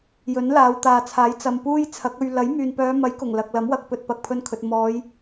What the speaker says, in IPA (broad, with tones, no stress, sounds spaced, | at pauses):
j ɵ˨˥ n l aː˨˧ w t̪ aː˨ t͡sʰ aː˨˥ j t͡s ɐ˨ m p uː˥ j t͡sʰ ɐ˨˥ k̚ ɵ˧ ɥ l ɐ˨˥ j m yː˨ n p œː˨˧ m ɐ˨˥ j k ʊ˨˩ ŋ l ɐ˨ k̚ l ɐ˨˥ m w ɐ˨ k̚ p ɵ˧ t̚ p ɐ˨ k̚ pʰ ɵ˧ n kʰ ɵ˨ t̚ m ɔː˨˧ j